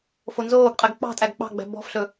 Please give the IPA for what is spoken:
fonzoːɡqʼɛɡ k͡pɑ̤tʼæɡ k͡pɑ̤ɡ͡bæ̤ bɔ̤fɬɵ

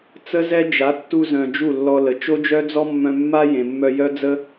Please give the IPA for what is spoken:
t͡sə˦zɛ˦ d͡ʒa˨˦tːu˧zœ̃˨ d͡ʒu˦˨lːɔ˧lə˨ t͡ʃo˦d͡ʒœ˦d͡zɔ˦ mːœ̃˧mːa˦ jẽ˨mːœ˧jœ˦ d͡zə˦

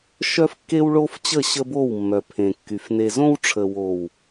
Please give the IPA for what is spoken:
ʃœ˦fkːe˦wɭo˦f t͡ɕə˦˨ɕə˦bo˦˨wmːœ˨ pʰẽ˨kːy˨f ne˨zõ˦wʈ͡ʂʰə˨ wo˨w

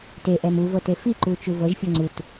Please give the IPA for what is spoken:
teʔɛm uvɤte fiǃut͡ʃu vɤʒfʲɔ ŋ͡ǀut

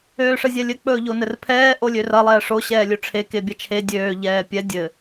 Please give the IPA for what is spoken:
øːʂɘzʲɛlʲɘ k͡pɵːʎonɘrpʰɛː ʔolʲørɐ lˠɛːʂo ɕɛːlʲɵʈ͡ʂʰe kebʲɐt͡ʃʰe dʲøː ʎɛːpʲɛ dʲɘ

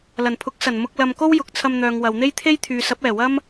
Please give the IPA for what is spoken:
lɐ˨˩npʰʊ˨˥k̚ sɐ˨˩n mʊ˧k̚lɐ˨mko˥w jʊ˨k̚t͡sʰɐ˧mn̪œː˨ŋ wɐ˨wn̪e˥jt̪ʰe˥j t̪ʰyː˨sɐ˨˥p̚ ɛː˨˩wɐ˥m

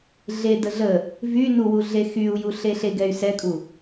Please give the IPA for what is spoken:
ɮedə ɮə | vy nuwu ɮexyu̯ju ɬeɬeɡɛy̯ sɛkʼu

